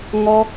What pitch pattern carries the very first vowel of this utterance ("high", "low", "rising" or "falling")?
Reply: high